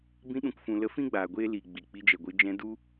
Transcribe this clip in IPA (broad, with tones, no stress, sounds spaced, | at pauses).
b ĩ˧ ɗ ũ˨ k f ũ˨ l ə˧ f ĩ˦ ɡ͡b aː˨ ɡʷ eː˦ l i˨ ɡ͡b i˨ k͡p i˧ d͡ʒ ɛ˨ ɡʷ ɨ˧ d͡ʒ ɛ̃˧ d u˦